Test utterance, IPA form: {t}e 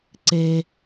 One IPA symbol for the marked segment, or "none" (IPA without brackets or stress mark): ǀ